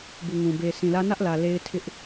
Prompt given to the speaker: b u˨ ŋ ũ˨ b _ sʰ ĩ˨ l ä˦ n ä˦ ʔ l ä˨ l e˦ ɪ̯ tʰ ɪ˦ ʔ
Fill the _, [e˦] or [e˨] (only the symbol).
e˨